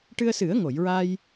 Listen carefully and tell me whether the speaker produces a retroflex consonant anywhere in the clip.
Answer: yes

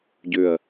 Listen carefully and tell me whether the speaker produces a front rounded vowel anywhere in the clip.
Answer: yes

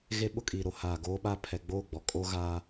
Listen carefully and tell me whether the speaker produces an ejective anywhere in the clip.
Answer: yes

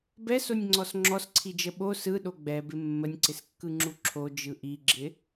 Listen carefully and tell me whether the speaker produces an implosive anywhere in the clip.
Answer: yes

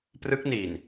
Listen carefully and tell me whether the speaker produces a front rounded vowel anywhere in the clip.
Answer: no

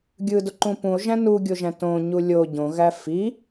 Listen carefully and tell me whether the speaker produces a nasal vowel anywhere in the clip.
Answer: yes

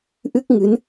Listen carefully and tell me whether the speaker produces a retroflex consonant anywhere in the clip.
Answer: no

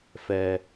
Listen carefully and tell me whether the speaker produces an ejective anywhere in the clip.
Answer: no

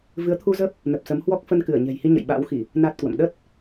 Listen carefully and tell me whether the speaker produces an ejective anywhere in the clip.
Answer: no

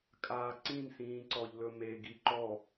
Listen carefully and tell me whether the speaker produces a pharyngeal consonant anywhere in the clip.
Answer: no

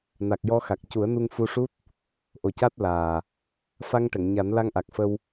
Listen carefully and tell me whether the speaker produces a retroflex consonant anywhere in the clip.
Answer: yes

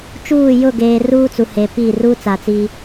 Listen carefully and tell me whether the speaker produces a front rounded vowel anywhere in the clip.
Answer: no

